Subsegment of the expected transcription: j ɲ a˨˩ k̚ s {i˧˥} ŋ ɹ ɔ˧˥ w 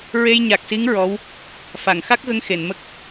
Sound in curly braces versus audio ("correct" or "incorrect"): correct